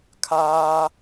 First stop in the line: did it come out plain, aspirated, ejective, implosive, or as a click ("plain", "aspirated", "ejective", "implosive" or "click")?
aspirated